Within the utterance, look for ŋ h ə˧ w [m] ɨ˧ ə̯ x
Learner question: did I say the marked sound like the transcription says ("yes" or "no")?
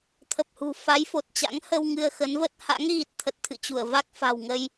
no